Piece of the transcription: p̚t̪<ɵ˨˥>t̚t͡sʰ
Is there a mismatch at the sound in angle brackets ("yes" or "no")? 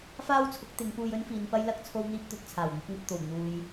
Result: no